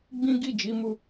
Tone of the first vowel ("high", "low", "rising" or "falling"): high